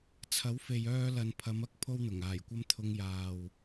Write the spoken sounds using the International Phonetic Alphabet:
t͡sʰ ɐ˨˥ w f e˨ j œː˧ l ɐ˨ n pʰ ɐ˨˧ m ɐ˥ k̚ pʰ o˥ w n̪ ʊ˨˩ ŋ aː˨˩ j kʷ ɐ˥ m t̪ʰ ʊ˧ ŋ j aː˨ w

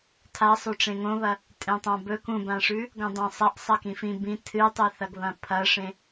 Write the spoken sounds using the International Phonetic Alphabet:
tʰ a sˤ ʉ ʈ͡ʂ ẽ ŋ õ β ɐ | tʼ ẽ tˤ ã b ɵ k ũ b ã ʂ ʉ | ɡ õ dˤ ã sˤ a ʔ sˤ a k ĩ f ĩ b ĩ tʰ ɨ tˤ ɨ θ ɐ ɡ β ɐ̃ pʰ ɐ ʂ ẽ

